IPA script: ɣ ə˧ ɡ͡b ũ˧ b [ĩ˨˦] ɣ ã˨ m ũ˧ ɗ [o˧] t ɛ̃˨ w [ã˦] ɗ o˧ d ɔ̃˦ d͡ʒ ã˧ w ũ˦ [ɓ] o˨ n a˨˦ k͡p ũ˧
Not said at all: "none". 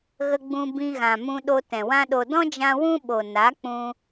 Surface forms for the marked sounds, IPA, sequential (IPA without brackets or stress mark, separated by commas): ĩ˧, o˧, ã˦, ɓ